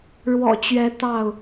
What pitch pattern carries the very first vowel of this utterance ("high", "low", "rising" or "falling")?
low